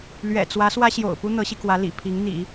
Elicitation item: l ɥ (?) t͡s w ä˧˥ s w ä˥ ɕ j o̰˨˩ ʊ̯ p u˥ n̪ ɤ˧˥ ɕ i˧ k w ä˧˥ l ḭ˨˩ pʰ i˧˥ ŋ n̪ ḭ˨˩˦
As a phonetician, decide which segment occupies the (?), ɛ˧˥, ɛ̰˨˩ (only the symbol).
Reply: ɛ̰˨˩